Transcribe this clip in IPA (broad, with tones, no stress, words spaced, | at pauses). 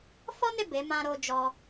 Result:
fɔ˦ne˦˨ be˨˦ mã˧ɾo˧ d͡ʒɔ˧